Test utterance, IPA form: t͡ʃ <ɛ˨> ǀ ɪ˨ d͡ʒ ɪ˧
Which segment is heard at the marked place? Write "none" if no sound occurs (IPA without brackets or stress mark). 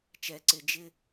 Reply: ɛ˨